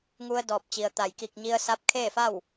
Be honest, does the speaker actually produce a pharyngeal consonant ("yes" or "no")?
no